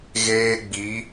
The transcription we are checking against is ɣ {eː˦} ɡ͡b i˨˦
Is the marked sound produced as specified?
yes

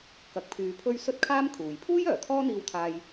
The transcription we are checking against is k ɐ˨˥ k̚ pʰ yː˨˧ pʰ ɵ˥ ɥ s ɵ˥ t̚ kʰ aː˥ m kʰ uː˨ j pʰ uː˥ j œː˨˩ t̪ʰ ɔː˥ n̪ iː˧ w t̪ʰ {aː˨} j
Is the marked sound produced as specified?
no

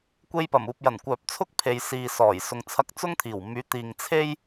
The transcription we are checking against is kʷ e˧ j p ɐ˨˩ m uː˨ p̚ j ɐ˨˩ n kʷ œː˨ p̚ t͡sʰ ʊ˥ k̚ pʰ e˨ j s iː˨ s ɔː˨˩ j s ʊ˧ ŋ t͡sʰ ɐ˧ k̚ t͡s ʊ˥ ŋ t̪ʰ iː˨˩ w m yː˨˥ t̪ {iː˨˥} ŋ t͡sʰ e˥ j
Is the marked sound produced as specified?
no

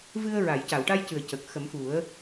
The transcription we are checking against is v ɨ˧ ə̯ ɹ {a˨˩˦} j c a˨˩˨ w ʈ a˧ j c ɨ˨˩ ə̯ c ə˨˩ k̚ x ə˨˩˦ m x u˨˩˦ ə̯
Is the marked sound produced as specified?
no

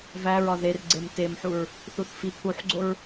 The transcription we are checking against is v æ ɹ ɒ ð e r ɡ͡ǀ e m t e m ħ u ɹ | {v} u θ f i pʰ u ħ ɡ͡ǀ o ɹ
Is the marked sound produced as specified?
no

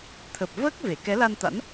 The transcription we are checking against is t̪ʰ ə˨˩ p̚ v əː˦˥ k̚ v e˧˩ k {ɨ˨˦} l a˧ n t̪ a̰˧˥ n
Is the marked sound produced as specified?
no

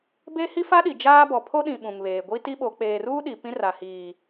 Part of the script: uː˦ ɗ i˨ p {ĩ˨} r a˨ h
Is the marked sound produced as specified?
no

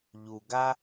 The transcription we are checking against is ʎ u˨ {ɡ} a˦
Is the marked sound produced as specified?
yes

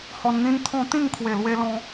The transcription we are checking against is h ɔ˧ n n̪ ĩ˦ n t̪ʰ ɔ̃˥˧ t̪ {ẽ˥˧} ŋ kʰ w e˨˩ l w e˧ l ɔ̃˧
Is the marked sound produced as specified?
no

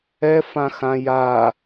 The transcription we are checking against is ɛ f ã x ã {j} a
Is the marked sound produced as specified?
yes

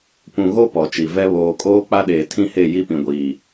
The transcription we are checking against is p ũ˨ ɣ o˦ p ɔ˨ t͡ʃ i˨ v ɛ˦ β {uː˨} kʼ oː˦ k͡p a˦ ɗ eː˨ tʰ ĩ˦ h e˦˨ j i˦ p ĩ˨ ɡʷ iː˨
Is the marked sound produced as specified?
no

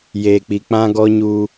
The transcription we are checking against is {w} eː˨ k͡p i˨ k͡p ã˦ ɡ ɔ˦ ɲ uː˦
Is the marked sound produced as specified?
no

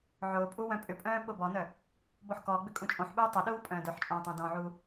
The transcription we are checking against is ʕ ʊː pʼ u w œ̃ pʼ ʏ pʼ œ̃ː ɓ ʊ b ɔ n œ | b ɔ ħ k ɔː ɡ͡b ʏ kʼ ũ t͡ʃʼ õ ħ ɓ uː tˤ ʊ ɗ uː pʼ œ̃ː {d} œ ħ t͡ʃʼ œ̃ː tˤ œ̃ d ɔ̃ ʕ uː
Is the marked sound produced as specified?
yes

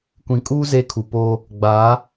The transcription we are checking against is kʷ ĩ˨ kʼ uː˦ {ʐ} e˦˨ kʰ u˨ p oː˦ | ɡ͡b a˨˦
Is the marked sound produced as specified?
no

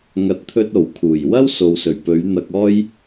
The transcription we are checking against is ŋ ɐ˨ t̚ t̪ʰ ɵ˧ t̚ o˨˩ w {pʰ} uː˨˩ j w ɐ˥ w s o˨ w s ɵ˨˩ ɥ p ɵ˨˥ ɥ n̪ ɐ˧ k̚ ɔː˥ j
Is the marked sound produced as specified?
no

